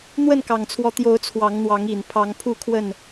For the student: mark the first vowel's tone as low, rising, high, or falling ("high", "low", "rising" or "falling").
falling